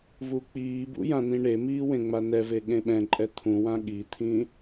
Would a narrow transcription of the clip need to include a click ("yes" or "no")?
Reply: yes